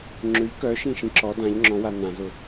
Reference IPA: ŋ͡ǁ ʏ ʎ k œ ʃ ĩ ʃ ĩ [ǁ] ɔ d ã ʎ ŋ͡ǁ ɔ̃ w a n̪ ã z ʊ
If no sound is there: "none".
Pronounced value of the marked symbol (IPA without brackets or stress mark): ǁ